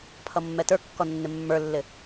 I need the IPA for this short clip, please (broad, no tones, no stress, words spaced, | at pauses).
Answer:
pʰʌmːɛtə˞kːɔ nːɪmːə˞lːɪ